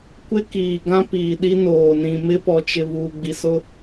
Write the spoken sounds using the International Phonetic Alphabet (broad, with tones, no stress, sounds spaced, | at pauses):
kʷ ɪ˦ k iː˨ ɡ ã˦ p iː˨ ɗ i˦ n oː˨ n ĩ˨ m ɪ˦ p ɔ˨ t͡ʃ ɪ˨ β uː˨ ɡ͡b i˨ s ʊ˦